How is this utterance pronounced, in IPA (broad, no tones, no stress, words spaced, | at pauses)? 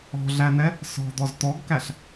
ɔ̤ɮænɛ | sɔ̤d̪ɔz t̪ɔɡkæɬ